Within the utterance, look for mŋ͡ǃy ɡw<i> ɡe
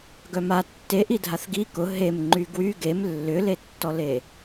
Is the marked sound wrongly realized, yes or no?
yes